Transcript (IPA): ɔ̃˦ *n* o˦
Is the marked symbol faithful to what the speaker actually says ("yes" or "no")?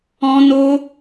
yes